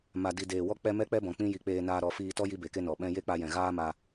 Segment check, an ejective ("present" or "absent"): absent